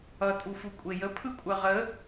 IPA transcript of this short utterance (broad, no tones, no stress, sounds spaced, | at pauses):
ʌ tʼ u f u kʷʼ e j ə pʰ ɯ kʷʼ ɜ ʁ ə